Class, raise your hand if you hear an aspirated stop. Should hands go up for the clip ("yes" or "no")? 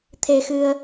yes